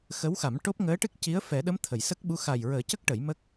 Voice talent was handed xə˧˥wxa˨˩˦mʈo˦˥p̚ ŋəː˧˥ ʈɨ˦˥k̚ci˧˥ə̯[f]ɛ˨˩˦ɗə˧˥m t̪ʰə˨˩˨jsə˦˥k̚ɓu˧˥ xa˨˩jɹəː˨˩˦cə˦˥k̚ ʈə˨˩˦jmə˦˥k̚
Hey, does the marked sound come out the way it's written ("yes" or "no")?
yes